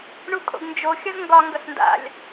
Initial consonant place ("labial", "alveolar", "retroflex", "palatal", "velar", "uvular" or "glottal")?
retroflex